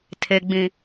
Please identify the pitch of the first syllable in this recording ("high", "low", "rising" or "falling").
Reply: low